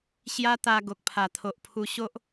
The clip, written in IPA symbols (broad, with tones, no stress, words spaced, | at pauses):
ɕja˦t̪a˧ ɡo˨k̚pʰa˨˩t̪ʰo˨ʔpʰu˧ ɕo˦ʔ